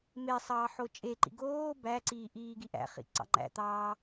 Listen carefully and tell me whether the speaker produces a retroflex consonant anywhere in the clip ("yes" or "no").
no